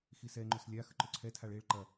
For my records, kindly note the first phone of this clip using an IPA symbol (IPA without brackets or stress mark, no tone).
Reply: x